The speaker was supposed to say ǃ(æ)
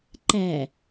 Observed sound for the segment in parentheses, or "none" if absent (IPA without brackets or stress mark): æ